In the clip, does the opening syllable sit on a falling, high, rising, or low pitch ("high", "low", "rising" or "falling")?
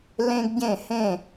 high